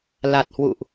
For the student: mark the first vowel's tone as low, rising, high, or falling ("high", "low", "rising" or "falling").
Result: low